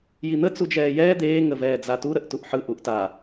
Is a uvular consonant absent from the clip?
yes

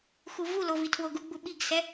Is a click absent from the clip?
yes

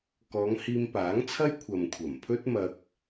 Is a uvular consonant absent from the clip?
yes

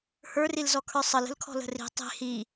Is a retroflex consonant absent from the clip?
yes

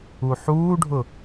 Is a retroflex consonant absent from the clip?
no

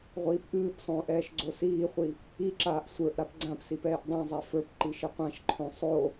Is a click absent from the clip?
no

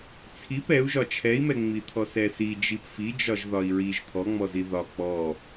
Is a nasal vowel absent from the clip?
yes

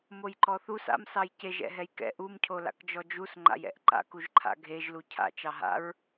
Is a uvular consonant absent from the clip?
yes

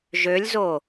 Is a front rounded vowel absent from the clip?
no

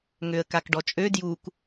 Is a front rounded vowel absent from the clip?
no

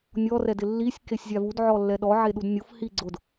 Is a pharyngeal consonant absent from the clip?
no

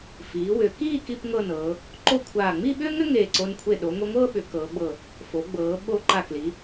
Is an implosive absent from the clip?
no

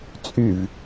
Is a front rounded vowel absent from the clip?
no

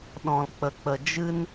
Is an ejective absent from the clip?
yes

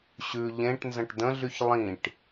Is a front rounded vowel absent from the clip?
no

